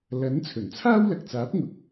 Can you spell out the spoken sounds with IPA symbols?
l ɐ˨˥ n t͡sʰ ɵ˨˩ n t͡sʰ aː˥ w l ɐ˨ k̚ t͡s aː˨˥ p̚ ŋ ʊ˨˥ k̚

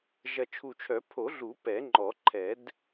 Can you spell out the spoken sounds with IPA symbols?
ʒ ɐ˨˩ t͡ʃʰ u˨˩ t͡ʃʰ œ˨˩˦ pʰ o˨˩˦ ɮ u˨˩˦ p ɛ˨˩˦ ŋ͡ǃ ɔ˨˩˦ ǃʰ ɛ˨˩˦ d

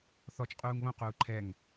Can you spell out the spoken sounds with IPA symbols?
θ ɔ t͡ʃ qʼ uː ŋ β õ q uː ǃʰ ɛ ŋ

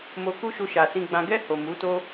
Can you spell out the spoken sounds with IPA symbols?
m o˧ k u˦ ʃ u˧ ʃ a˨ s ĩ˨ ɡ͡b ã˨ ɡ ɛ˧ h o˨ m u˨˦ t o˦

